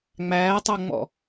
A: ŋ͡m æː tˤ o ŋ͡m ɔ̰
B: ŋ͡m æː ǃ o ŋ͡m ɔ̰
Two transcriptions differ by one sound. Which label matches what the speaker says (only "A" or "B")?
A